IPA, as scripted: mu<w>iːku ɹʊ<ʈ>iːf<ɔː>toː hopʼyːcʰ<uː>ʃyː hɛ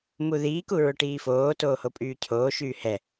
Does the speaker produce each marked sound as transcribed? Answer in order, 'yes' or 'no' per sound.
no, yes, no, no

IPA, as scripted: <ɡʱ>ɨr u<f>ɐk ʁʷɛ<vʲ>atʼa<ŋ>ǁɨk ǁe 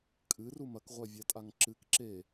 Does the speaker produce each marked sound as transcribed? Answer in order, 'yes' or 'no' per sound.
no, no, yes, yes

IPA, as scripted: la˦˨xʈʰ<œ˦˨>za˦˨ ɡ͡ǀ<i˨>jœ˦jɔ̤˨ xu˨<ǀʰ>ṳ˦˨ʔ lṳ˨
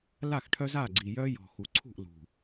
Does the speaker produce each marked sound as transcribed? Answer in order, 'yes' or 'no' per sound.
no, yes, yes

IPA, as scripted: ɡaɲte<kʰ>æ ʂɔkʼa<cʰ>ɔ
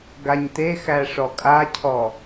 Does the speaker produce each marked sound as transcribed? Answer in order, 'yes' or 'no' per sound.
no, yes

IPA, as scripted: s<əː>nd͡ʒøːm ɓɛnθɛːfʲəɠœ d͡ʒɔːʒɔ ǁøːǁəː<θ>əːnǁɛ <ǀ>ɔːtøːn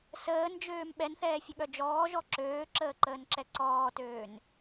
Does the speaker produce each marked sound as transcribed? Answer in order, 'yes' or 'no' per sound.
yes, no, yes

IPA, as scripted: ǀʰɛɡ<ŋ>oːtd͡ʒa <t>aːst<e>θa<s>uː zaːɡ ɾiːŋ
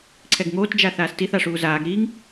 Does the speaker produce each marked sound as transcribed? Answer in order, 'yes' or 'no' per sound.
yes, no, no, no

